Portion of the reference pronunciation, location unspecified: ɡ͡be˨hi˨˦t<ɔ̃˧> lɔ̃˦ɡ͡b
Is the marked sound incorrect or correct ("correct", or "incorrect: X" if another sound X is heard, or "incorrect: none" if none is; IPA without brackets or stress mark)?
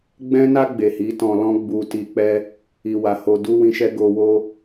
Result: correct